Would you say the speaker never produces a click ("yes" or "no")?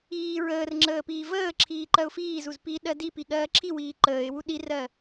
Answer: no